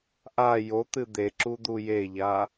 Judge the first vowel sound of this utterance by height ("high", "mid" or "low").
low